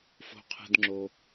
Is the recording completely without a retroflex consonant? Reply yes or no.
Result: yes